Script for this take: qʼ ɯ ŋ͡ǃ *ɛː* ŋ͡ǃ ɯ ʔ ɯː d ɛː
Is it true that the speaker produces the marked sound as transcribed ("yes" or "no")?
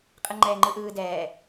yes